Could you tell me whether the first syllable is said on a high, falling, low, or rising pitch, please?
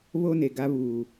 high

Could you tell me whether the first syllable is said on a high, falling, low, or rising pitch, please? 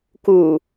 low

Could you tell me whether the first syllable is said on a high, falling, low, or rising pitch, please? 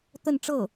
falling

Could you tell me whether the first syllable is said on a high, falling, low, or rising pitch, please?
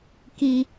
high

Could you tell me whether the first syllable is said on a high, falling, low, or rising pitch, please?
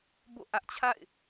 falling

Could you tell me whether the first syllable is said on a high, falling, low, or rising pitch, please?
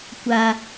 low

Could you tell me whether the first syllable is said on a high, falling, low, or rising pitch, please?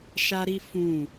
high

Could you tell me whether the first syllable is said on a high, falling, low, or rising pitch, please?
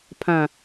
low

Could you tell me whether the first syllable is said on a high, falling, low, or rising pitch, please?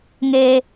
high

